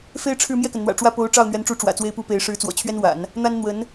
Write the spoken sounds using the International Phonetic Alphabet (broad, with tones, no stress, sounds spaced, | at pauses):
f e˥ ɪ̯ ʈ͡ʂʰ ɻ̩˥˧ m j ɛ˥˩ k ə˩ n n̪ w ä̰˨˩ ʈ͡ʂ w ä˥˩ p o˧˥ ʊ̯ ʈ͡ʂ ɑ˥˩ ʊ̯ n̪ ɥ ɛ˧˥ n ʈ͡ʂ u˧˥ ʈ͡ʂ w ä̰˨˩ t͡s w e˥ ɪ̯ p u˥ p e˧˥ ɪ̯ ʂ ɻ̩˧˥ t͡s w ɔ̰˨˩ t͡ɕʰ ɥ ɛ˥ n w a̰˨˩˦ n | n̪ a˥ n n̪ w ə˧˥ n